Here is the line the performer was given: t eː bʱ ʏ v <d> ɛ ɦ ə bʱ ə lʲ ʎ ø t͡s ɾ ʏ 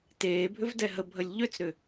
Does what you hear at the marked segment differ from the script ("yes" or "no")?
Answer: no